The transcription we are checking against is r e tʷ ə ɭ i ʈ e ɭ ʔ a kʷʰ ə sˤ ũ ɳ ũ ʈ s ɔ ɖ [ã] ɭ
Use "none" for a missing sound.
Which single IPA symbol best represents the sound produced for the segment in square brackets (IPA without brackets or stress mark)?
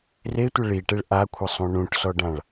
ã